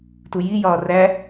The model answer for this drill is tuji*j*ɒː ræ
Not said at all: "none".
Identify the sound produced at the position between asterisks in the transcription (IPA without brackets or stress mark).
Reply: j